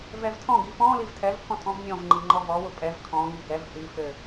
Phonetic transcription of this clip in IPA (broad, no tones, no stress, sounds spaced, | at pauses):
v ɛ v tʰ ɔ̃ ɡ i f ɔ̃ l i v tʰ ɛ v pʰ ɔ̃ tʼ ɔ̃ v nʲ ɔ̃ v ŋ͡ǃ i ŋ͡ǃ ɔ v ɔ w ʊ pʼ ɛ v kʰ ɔ̃ ŋ i ɡ ɛ v h i f ɘ